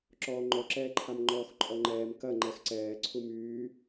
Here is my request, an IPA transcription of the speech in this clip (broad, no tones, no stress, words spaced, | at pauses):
ǁɔːŋ͡ǃɔǁɛːǃʰam ŋ͡ǃɔːxǃʼɔŋ͡ǃɛːm kɐ ŋ͡ǃɛxǀɛː ǀʰumyː